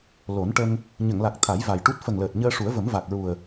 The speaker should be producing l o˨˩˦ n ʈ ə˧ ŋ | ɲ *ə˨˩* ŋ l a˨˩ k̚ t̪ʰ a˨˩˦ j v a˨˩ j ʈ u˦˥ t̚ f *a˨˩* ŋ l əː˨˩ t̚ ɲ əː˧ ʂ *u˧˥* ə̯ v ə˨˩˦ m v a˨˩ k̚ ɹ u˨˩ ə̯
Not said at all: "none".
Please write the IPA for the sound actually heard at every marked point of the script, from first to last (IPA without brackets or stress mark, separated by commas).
ə˨˩˨, ə˨˩, u˨˩˦